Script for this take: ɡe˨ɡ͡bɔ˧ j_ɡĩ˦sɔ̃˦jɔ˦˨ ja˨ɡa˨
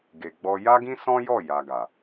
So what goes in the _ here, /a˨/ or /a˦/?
a˦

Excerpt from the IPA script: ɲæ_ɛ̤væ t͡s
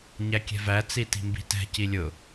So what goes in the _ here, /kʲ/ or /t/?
kʲ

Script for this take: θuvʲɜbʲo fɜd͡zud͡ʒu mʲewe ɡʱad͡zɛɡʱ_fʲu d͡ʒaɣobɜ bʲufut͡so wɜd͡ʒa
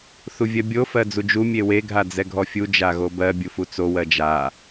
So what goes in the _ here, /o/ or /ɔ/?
ɔ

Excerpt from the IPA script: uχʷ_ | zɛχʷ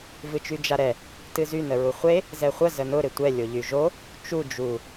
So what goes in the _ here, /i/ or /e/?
e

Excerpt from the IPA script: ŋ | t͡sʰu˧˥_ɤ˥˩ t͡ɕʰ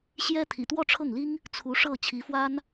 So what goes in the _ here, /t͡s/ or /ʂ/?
ʂ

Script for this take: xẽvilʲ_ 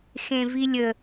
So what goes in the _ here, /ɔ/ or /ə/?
ə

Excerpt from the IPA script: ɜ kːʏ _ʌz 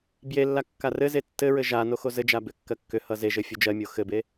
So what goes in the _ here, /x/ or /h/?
h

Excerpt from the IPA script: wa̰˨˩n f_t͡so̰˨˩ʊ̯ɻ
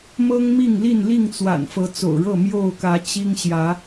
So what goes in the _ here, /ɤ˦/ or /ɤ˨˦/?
ɤ˨˦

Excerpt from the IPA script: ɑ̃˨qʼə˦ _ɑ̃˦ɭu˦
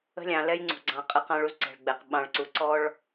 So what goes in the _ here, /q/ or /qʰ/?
q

